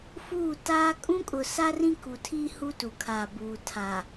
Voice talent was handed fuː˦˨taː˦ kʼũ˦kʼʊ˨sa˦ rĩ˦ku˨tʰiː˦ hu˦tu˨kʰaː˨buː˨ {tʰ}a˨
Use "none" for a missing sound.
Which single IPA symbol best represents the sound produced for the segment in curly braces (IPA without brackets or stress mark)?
tʰ